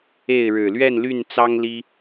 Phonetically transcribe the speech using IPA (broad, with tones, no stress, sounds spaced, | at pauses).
e˥˨ ɪ̯ ɻ ɻ̩˨˩ l ɥ ɛ˥˨ n l y˥˨ n t͡s ɑ˦ ŋ l i˦